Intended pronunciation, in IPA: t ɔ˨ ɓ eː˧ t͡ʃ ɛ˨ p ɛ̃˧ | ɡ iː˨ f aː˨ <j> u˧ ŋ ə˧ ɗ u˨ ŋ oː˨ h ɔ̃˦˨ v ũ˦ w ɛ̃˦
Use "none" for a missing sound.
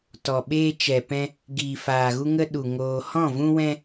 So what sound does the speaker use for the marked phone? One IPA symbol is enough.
ɣ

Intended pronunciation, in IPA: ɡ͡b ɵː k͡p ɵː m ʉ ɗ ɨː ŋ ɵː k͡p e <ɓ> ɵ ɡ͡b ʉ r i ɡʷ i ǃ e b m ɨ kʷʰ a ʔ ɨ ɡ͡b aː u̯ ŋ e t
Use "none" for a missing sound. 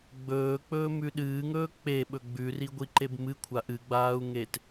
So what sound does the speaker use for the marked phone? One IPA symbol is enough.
ɓ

